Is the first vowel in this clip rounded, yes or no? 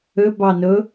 yes